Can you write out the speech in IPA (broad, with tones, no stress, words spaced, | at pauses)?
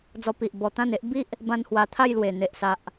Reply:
d͡zɔ˧pi˨ʔ bɔ˧t̪ã˥˧ne˦ʔ bi˦ʔ | bã˧n hwa˧t̪ʰa˥˧jlwe˨˩ n̪e˨ʔsa˨ʔ